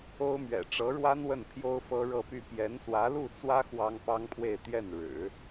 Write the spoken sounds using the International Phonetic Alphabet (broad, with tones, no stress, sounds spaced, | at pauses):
o˥ ʊ̯ m ɥ ɛ̰˨˩ ʈ͡ʂ ɤ˧˥ ɻ w a˥ n w ə˥˩ n pʰ j o˥ ʊ̯ f ɤ˥ ɻ ɤ˥˧ p y˥˩ p j ɛ˧˥ n s w ä˧˥ l u˥˩ t͡s w ä˥ x w ɑ˥ ŋ p ɑ˥ ŋ pʰ w e˥˧ ɪ̯ t̪ j ɛ˥˩ n ɻ ɻ̩˨˩˦